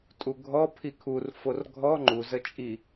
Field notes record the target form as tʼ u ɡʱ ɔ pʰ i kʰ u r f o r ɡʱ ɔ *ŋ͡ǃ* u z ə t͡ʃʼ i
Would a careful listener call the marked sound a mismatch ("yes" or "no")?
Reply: no